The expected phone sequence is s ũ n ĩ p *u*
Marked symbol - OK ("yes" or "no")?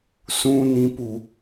yes